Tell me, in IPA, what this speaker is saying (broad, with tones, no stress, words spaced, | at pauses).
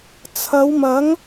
t͡sʰɐ˨˧wmɐ˨˥ŋ